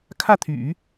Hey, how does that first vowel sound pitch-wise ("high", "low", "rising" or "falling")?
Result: falling